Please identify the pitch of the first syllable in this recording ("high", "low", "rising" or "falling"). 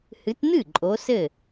rising